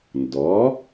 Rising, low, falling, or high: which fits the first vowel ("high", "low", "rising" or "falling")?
rising